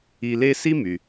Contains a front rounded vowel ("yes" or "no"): yes